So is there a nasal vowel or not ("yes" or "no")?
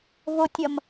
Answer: no